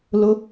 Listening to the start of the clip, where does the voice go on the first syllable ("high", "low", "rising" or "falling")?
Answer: rising